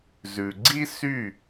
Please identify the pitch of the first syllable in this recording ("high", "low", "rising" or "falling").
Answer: low